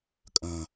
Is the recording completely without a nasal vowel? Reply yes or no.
no